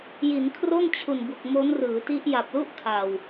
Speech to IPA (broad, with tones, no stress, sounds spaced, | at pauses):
j i˩˦ n kʰ r o˥˩ n t͡ɕʰ u˨˩ n b u˨˩ k̚ m o˦˥ n r ɯː˩˦ t i˦˥ ʔ j a˨˩ p̚ l u˥˩ ʔ kʰ a˨˩ w